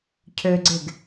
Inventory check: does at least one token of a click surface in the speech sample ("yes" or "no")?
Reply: yes